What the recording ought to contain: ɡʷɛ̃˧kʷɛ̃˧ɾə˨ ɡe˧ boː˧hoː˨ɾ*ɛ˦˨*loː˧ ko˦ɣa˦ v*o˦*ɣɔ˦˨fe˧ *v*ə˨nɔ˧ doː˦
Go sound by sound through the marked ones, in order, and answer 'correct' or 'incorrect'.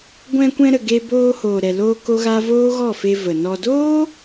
incorrect: ɛ˨, incorrect: oː˦, correct

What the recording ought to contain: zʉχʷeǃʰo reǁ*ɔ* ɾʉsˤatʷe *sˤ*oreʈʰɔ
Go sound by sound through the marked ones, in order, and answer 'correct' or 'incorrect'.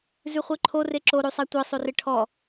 incorrect: o, correct

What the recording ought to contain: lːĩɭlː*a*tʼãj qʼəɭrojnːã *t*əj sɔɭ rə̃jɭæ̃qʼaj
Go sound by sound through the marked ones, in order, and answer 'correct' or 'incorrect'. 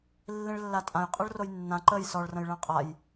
correct, incorrect: ǃ

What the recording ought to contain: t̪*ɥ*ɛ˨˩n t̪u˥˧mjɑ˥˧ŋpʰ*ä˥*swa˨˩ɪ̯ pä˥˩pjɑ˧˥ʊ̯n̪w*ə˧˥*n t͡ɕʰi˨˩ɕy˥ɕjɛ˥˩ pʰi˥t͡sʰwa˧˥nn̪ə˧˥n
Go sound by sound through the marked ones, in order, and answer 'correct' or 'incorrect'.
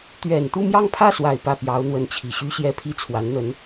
correct, incorrect: ä˥˩, correct

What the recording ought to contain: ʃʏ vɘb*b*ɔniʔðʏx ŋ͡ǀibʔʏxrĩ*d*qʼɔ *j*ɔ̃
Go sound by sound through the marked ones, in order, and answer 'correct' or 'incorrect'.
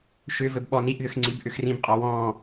incorrect: ɓ, incorrect: b, incorrect: w

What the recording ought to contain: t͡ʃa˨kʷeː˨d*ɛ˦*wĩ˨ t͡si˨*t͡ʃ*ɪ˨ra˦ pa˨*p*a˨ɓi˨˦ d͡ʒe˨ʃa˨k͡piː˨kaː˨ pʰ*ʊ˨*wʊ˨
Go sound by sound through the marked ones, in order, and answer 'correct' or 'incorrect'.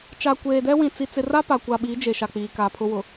correct, incorrect: t͡s, incorrect: kʷ, incorrect: ʊ˦

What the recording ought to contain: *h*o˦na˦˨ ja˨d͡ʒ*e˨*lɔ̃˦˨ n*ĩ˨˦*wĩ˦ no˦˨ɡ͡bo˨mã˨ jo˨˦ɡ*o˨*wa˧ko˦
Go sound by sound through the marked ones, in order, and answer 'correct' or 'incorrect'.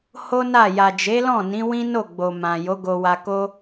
correct, incorrect: e˨˦, correct, incorrect: o˧

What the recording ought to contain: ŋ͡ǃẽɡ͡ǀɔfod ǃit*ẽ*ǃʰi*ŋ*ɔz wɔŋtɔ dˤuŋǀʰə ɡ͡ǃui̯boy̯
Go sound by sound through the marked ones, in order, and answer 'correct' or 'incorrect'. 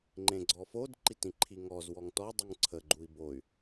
incorrect: ĩ, correct

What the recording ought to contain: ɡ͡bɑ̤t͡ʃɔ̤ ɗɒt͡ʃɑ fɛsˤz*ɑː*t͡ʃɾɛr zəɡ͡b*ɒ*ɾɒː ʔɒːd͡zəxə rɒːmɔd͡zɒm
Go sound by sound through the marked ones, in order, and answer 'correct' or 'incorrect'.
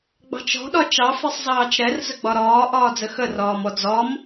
correct, correct

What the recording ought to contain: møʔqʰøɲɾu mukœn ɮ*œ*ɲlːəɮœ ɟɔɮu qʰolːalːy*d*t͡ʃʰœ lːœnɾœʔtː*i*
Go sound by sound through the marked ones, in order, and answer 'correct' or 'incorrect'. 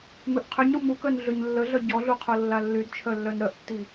incorrect: ø, correct, correct

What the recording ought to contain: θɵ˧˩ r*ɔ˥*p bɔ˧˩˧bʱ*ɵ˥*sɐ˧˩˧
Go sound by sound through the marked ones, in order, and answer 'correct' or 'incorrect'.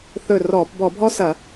incorrect: ɔ˧˩˧, incorrect: ɔ˥

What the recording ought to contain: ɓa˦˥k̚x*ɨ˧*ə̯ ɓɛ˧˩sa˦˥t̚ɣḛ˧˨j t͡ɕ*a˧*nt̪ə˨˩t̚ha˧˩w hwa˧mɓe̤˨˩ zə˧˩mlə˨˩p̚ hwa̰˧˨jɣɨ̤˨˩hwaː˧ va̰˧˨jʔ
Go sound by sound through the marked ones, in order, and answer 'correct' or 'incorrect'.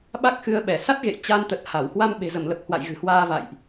correct, correct

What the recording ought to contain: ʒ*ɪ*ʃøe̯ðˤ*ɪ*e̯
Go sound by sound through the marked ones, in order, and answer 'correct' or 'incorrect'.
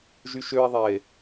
incorrect: y, incorrect: ɛ

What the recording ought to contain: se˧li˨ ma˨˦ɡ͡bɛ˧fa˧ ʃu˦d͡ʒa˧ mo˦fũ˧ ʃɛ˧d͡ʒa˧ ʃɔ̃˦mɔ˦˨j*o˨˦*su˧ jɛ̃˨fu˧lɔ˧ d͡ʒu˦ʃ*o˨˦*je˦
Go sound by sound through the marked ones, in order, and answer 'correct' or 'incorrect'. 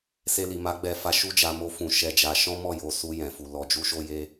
incorrect: o˧, incorrect: o˦

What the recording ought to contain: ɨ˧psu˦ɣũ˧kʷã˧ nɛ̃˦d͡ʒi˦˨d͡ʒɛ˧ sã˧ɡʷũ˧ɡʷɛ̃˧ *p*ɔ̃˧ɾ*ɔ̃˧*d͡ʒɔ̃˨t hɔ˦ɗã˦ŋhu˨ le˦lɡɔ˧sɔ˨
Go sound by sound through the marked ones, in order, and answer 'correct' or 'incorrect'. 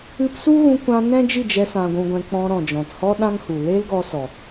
incorrect: k͡p, incorrect: ɔ̃˨

